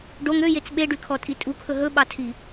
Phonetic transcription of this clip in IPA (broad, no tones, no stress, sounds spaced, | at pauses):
ɖ o ŋ ø j e t͡s ɓ e ɖ y kʰ ɔ tʼ i tʼ u kʰ ɵ ɦ ɵ ɓ ɑ tʰ i